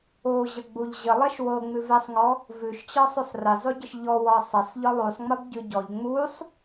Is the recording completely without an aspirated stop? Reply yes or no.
yes